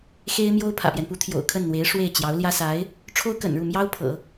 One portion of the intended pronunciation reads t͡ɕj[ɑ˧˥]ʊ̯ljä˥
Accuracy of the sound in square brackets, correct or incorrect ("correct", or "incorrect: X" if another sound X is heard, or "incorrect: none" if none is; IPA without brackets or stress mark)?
correct